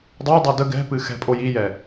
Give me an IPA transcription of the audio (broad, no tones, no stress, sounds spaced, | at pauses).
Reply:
dˤ o dˤ ə d ə ɡ ɛ̤ p ɨ x ɛ̤ pʼ o j i j ɛ